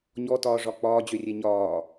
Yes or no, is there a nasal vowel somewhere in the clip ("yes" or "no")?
no